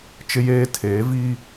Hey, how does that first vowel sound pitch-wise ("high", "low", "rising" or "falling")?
high